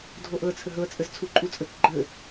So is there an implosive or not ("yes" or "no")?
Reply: no